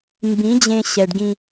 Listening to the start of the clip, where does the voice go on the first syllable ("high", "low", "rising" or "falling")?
rising